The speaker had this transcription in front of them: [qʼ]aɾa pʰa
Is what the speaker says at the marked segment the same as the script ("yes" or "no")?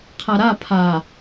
no